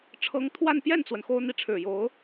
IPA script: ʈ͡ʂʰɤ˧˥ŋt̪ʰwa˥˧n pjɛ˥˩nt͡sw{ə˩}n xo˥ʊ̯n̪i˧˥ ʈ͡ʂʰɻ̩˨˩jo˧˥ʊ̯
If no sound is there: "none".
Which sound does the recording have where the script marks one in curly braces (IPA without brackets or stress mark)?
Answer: ə˩